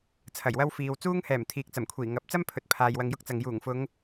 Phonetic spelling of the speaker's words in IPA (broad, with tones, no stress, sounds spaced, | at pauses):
t͡sʰ ɐ˨˩ j w ɐ˥ w f iː˨ w t͡s uː˥ ŋ h ɛː˨˩ m t̪ʰ iː˨ k̚ t͡s ɐ˨˩ m kʷʰ iː˨˩ ŋ ɐ˨˥ p̚ t͡s ɐ˥ m pʰ ɵ˨ t̚ pʰ aː˨ j w ɐ˧ ŋ j ʊ˥ k̚ t͡s ɐ˨ ŋ j uː˨˩ ŋ f ʊ˨˧ ŋ